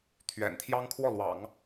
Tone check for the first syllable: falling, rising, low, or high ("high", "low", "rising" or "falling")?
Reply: low